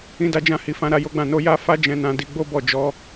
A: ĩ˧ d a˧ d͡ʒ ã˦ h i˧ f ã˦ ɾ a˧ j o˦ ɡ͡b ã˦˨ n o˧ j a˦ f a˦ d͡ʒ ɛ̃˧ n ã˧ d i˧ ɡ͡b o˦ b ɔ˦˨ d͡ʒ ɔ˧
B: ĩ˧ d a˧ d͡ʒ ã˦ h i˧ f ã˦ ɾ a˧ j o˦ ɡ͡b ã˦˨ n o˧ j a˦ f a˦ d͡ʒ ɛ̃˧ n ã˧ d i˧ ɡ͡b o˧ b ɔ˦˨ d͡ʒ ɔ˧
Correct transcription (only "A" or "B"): A